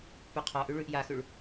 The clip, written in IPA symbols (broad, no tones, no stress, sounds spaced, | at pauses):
p ʉ qʰ ɔ ʔ ʉ ɭ ʉ ʔ j a x ʉ ɭ